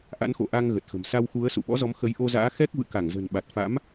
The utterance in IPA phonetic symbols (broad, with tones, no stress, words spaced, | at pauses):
ʔa̰˧˥nxo̰˧˨ʔa˧ŋ ɣə˨˩t̚xə̤˨˩m sa˧wxu˨˦ə̯ sṵ˧˨ɓɔ̰˧˥zɔ˨˦m xə˨˦jʔo˧za̰ː˧˥ xɛ˦˥k̚vɨ̰˧˨ ka˧˩ŋzə̤˨˩nɓa˨˩t̚ fa̰˧˥m